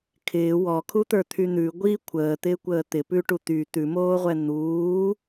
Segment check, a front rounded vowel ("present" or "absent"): present